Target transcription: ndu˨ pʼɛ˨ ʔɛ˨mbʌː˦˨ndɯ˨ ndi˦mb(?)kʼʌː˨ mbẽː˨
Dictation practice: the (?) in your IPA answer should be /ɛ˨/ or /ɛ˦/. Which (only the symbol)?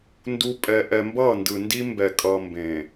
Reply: ɛ˨